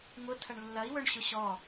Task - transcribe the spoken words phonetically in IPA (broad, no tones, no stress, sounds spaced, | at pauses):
ŋ ʊ tʰ ɐ ɳ lː ɐ i̯ w œ ɳ ɕ ʊ ɕ ɔ